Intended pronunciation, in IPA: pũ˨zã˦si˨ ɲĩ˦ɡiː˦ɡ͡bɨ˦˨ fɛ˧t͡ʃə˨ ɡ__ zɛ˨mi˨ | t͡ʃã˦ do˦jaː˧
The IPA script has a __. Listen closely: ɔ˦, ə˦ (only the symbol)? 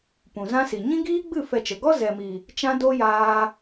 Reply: ɔ˦